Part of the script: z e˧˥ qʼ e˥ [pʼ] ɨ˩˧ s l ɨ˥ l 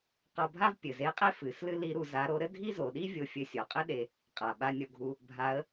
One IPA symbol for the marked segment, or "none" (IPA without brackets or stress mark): f